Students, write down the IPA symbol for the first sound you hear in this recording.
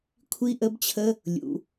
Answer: kʷʰ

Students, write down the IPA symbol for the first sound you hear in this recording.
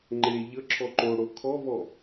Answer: ŋ͡ǃ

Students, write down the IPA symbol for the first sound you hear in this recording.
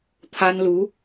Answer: t̪ʰ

